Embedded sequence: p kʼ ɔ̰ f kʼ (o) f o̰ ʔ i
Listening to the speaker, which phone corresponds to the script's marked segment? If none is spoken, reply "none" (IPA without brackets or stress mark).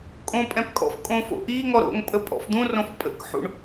õ